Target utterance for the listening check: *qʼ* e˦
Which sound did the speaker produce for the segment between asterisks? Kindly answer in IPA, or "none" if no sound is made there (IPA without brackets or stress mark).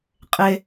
qʼ